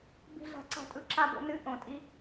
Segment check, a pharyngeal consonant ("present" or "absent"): absent